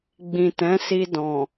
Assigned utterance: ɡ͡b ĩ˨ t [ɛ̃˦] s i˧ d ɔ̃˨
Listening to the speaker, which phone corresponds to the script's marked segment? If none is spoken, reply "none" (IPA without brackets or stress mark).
ɛ̃˨˦